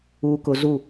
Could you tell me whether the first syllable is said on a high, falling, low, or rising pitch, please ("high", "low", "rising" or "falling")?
low